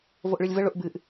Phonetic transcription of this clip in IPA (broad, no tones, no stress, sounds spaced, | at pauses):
v o ʔ ɭ ɨ lʲ v ə ɭ ʊ ʔ b ɨ ʔ